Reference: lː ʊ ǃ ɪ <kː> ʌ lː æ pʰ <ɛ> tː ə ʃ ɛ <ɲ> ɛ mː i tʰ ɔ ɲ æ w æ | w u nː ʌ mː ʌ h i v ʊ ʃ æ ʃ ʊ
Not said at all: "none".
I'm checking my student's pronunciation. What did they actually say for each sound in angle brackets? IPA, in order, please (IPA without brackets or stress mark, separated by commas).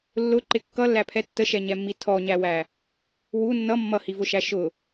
kː, ɛ, ɲ